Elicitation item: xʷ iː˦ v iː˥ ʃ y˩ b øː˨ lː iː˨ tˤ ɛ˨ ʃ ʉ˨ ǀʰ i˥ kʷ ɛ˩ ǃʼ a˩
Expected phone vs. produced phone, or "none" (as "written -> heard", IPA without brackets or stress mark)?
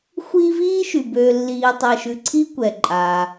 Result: none